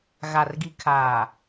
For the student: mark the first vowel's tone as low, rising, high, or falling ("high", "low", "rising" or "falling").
low